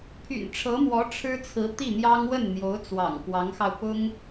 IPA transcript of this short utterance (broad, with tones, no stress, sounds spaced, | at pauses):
pʰ y̰˨˩ n ʈ͡ʂʰ ɤ˧˥ m w ɔ˧˥ ʈ͡ʂʰ ɻ̩˥ t͡sʰ ɹ̩˧˥ t̪ i˥˩ n̪ j ɑ˥ ŋ w ə˥˩ n n̪ j o˧˥ ʊ̯ t͡s w ɑ̰˨˩ ŋ k w ɑ˧˥ ŋ x ɑ˧ ʊ̯ p ʊ˥ ŋ